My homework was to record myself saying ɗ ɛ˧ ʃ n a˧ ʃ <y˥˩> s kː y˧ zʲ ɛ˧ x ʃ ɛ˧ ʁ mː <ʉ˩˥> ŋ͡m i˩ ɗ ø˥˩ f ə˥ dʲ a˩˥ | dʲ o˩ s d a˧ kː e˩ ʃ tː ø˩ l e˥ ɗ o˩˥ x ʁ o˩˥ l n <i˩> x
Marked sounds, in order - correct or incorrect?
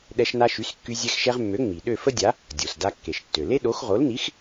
incorrect: y˩˥, incorrect: ø˩˥, incorrect: i˩˥

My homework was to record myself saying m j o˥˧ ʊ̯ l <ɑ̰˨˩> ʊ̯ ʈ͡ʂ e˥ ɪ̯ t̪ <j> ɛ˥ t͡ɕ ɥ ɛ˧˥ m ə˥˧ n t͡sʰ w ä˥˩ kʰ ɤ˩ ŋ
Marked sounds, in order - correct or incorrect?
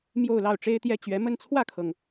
incorrect: ɑ˥˩, correct

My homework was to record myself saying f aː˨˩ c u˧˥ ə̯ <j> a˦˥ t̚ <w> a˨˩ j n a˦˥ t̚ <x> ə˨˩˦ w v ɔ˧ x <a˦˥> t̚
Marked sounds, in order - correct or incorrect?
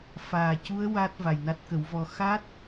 incorrect: w, incorrect: v, incorrect: k, correct

